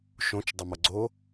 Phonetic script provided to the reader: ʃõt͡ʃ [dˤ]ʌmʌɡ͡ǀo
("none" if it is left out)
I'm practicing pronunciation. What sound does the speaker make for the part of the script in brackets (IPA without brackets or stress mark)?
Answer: dˤ